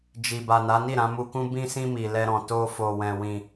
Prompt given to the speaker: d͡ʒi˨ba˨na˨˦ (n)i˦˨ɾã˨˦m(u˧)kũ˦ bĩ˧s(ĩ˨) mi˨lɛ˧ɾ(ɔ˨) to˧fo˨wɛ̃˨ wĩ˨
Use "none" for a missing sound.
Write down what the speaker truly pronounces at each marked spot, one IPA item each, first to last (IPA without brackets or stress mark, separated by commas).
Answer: n, u˧, ĩ˧, ɔ̃˨